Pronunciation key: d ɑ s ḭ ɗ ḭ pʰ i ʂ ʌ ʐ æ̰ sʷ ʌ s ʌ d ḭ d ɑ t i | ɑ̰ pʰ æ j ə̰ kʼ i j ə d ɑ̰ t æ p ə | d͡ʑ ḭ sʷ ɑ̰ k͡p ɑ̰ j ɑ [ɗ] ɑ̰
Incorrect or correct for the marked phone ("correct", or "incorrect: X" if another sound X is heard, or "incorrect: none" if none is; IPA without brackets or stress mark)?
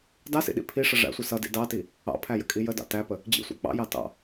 incorrect: t